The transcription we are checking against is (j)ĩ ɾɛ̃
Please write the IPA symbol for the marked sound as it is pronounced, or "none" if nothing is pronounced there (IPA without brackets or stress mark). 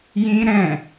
j